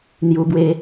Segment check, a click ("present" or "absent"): absent